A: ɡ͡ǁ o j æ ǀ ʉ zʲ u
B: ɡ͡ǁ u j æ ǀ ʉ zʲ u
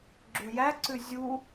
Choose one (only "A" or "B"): B